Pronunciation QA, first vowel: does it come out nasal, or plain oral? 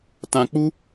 nasal